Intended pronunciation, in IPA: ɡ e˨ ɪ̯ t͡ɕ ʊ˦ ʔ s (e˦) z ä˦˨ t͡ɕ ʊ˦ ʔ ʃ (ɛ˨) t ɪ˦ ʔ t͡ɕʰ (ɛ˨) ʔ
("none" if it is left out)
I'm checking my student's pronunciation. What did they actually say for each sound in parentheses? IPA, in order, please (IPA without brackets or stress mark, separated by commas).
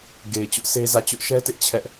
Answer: e˦, ɛ˦, ɛ˦